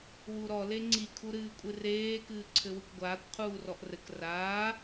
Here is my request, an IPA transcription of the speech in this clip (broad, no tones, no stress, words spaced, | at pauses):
wuɾɔ leŋ͡ǀi kʰuɾɨːkʷʼɨreː kɨːǀʰɘwɨkʷɡʷaːkʷ qʰuːrɔʔrɘk raː